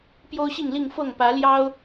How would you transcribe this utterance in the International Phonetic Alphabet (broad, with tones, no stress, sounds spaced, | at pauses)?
p j o˦ ʊ̯ ɕ i˥˨ ŋ l i˥˨ ŋ f ɤ˥˨ ŋ p ä˨˦ l j ɑ˦ ʊ̯